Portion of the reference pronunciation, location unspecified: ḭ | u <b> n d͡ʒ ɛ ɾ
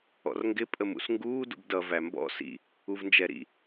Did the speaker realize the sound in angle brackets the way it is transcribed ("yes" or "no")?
no